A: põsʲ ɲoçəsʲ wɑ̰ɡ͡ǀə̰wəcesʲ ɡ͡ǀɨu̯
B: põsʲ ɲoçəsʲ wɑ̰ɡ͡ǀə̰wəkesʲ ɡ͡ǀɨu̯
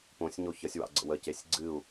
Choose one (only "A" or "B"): A